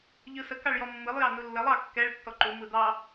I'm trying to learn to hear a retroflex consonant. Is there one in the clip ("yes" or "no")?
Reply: yes